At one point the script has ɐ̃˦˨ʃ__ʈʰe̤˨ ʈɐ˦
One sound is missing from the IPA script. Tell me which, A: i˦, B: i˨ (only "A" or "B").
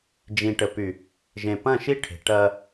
A